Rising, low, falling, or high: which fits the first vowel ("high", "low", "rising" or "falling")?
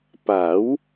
rising